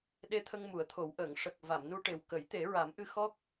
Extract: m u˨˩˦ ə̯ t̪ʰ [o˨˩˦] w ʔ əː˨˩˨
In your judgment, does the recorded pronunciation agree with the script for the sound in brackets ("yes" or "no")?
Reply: yes